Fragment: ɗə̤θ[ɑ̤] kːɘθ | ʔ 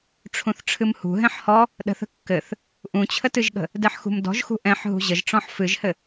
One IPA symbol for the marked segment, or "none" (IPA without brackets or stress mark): ə̤